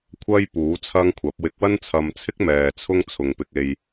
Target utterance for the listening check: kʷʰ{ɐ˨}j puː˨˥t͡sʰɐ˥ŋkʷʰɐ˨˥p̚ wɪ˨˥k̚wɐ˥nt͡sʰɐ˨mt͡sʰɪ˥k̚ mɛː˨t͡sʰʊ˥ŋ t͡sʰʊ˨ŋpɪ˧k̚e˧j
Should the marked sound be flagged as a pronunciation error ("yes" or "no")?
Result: yes